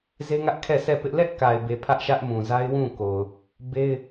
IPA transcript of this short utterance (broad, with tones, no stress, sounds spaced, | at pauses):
z e˦ ŋ ä˦ ʔ kʰ ɛ˦˨ s ɛ˦˨ p ɪ˦ ʔ l ɛ˦ ʔ k a˨ ɪ̯ b e˨ pʰ ä˦ ʔ ʃ ä˦ ʔ m ũ˨ z a˦ ɪ̯ w ũ˦˨ k o˨ ʊ̯ | b e˦ ɪ̯